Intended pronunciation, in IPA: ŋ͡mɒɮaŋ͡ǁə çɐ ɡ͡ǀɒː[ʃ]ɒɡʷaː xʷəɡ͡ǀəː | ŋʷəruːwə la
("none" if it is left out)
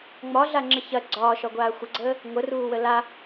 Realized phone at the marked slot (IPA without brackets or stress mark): ʃ